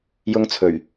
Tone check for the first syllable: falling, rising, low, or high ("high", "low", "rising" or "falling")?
high